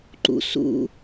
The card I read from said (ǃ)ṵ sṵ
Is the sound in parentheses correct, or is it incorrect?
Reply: correct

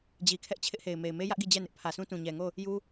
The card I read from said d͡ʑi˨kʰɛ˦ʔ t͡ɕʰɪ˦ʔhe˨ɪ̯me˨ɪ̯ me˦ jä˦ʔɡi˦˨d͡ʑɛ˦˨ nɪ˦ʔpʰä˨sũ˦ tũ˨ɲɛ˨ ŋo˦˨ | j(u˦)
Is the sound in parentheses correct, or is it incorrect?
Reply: correct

